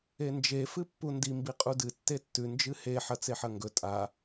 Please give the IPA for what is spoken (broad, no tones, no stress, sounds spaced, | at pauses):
e n d͡ʒ e f ɨ pː u n d i m b i qʼ u d ɨ tː e tː ʉ n d͡ʒ ɨ h e ħ ɐ t͡s e ħ ɐ ŋ ɡ ɵ tʼ a